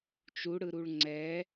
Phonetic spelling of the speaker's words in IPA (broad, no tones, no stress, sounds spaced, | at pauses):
t͡ʃ u ɽ ɯ ɾ u ɭ ŋ͡ǀ ɛ